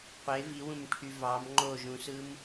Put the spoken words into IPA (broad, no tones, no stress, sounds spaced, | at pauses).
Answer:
qʷ e v i w ũ m ʈʰ y v ɑ m ŋ͡ǃ o ʒ ũ s ɯ m